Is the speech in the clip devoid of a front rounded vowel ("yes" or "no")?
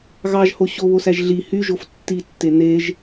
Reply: no